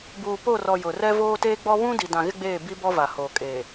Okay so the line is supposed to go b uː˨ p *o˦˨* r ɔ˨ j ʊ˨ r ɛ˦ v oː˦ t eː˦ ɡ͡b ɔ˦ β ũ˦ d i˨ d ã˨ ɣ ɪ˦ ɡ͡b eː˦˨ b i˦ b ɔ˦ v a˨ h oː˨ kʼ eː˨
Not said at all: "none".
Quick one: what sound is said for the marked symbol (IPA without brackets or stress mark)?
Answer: o˦˨